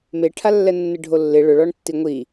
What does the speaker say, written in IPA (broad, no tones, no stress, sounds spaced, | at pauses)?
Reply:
m e ʈʰ a lː ɛ nː ɪ ɖʱ o lː ɪ ɭ ʊ ɭ ɔ ɳ tː i ŋʷ i